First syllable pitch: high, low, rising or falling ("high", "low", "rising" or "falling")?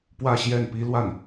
falling